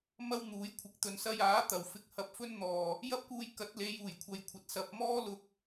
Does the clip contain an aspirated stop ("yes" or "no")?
yes